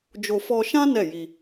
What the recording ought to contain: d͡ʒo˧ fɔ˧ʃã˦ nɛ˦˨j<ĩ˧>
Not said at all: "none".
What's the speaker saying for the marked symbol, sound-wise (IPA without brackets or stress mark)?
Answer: i˧